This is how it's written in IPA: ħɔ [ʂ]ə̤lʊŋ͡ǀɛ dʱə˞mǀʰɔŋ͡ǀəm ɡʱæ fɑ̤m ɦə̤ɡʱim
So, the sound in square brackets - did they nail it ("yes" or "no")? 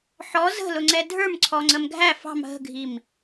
no